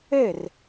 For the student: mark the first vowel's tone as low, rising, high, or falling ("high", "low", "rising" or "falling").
falling